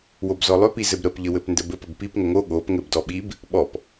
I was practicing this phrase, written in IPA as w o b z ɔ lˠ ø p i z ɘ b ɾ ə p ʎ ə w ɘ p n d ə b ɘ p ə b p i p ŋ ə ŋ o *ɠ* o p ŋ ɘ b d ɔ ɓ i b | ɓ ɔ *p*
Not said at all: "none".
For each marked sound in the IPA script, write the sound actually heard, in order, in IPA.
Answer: ɠ, p

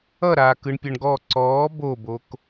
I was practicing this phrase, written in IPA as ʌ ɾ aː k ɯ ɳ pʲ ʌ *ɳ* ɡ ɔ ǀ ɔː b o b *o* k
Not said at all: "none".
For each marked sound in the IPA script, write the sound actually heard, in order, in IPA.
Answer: ɳ, o

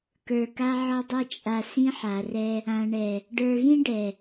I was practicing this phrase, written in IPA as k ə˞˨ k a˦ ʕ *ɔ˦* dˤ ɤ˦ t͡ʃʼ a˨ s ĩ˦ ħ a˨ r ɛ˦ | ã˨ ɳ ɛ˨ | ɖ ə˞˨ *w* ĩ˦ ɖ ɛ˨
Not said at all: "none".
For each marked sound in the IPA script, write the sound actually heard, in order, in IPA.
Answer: ɔ˦, ɣ

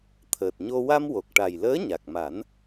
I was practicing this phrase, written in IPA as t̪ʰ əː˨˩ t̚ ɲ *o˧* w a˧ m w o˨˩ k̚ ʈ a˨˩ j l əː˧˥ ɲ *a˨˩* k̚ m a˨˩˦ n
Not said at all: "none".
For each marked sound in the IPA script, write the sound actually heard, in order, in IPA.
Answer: o˧, a˨˩

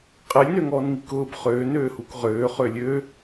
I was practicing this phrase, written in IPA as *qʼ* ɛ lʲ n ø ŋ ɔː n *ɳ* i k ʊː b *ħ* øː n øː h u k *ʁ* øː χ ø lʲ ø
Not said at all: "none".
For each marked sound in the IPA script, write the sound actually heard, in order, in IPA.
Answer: qʼ, ŋ, χ, ʁ

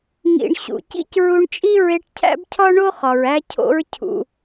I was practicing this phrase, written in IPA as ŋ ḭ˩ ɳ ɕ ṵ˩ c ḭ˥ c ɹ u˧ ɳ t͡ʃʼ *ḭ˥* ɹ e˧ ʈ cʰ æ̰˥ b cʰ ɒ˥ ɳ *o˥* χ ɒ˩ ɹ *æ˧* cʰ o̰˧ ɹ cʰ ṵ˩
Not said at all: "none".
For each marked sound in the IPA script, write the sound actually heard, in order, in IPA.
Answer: i˥, o˥, æ˧

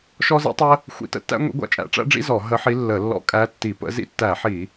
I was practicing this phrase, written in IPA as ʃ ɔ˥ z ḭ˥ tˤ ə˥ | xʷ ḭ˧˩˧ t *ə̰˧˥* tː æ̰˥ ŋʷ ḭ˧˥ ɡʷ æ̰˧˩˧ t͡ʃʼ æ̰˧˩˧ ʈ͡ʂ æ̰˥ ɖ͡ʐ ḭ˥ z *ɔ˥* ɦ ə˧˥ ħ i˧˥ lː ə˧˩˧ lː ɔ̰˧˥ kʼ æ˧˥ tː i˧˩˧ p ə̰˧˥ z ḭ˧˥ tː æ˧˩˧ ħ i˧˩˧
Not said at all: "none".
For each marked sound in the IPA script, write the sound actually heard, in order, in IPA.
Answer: ə̰˧˥, ɔ˧˩˧

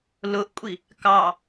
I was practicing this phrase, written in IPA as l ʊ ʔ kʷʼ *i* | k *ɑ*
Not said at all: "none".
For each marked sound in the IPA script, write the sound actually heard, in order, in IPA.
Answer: i, ɑ

